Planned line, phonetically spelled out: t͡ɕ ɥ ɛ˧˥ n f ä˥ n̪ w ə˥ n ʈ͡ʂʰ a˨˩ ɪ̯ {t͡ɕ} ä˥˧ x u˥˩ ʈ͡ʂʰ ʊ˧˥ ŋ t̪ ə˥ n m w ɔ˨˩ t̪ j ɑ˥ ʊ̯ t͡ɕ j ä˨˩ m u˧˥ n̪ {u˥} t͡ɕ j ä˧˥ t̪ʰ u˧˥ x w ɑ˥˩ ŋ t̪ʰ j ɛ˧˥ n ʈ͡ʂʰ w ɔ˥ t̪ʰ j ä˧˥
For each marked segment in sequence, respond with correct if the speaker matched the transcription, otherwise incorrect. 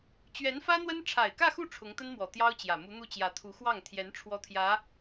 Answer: incorrect, incorrect

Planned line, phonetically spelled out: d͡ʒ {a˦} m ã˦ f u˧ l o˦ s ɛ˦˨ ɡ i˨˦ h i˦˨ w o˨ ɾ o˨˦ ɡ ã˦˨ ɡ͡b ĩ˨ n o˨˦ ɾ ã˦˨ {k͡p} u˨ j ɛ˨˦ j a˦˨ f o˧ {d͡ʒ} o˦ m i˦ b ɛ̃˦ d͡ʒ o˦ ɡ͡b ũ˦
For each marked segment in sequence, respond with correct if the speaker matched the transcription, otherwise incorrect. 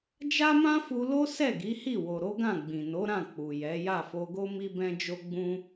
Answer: correct, correct, incorrect

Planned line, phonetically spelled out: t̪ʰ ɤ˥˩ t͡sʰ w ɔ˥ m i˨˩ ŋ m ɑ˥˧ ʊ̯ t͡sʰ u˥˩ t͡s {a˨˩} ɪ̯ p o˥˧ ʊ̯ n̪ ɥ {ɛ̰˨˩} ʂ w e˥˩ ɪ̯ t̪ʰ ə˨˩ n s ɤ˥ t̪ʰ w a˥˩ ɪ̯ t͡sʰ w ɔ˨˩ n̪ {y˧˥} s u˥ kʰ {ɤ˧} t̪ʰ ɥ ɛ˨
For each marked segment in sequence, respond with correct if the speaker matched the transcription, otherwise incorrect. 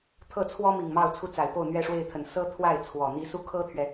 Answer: correct, incorrect, incorrect, incorrect

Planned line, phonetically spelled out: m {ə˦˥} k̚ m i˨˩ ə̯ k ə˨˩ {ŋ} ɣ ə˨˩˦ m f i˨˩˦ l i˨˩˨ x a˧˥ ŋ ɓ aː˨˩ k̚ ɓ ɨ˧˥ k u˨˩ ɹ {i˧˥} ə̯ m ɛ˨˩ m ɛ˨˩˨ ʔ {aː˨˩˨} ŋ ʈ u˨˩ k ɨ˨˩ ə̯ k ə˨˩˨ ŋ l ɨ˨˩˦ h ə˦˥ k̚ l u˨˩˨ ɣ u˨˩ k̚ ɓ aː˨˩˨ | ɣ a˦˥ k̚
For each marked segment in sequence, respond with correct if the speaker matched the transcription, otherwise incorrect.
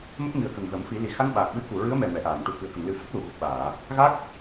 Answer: correct, correct, incorrect, correct

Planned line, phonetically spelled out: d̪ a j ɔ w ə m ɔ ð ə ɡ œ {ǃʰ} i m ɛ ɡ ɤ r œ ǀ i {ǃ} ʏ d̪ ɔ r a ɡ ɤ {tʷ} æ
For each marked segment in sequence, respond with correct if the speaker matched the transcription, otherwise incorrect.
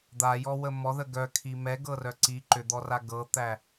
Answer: incorrect, correct, incorrect

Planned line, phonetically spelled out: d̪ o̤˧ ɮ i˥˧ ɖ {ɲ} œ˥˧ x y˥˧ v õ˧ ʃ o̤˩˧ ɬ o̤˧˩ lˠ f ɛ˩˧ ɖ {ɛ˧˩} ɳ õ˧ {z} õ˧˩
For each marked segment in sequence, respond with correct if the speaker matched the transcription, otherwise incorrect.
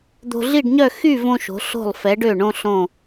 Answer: correct, incorrect, incorrect

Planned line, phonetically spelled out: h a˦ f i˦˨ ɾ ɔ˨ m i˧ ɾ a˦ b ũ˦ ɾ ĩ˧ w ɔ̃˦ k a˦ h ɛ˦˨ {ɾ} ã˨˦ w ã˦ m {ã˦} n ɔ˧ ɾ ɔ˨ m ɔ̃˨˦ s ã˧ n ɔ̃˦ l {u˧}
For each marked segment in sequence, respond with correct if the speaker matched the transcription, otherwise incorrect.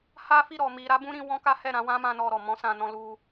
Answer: correct, correct, correct

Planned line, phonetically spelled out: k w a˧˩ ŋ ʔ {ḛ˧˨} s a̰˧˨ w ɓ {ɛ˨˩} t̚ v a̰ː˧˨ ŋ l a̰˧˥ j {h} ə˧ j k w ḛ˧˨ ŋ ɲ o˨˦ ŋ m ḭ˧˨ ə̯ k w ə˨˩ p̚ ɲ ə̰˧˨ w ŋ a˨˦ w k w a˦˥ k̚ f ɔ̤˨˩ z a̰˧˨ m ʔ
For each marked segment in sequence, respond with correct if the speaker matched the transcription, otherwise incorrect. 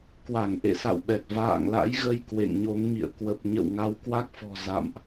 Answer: correct, correct, incorrect

